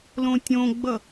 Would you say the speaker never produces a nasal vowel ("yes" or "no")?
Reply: no